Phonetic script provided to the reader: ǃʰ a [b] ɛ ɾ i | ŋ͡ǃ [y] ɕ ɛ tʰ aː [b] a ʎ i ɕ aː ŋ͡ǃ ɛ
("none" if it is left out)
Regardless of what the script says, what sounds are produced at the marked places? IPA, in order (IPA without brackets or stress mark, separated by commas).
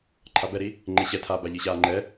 b, e, b